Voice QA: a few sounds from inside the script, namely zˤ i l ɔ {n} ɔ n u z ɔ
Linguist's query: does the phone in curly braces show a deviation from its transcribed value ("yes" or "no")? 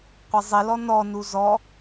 no